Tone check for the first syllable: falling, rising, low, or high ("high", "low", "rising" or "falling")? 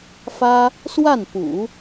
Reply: high